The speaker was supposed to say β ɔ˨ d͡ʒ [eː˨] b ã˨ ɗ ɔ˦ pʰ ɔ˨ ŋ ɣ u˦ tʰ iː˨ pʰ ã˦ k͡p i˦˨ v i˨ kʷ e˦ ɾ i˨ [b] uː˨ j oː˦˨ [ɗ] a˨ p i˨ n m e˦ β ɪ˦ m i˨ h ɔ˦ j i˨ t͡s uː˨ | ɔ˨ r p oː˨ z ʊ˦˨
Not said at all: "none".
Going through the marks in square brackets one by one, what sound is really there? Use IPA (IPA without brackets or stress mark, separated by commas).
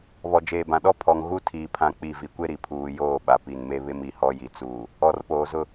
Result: eː˨, pʰ, ɓ